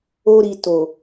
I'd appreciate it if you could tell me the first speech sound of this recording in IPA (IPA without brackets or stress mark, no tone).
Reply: o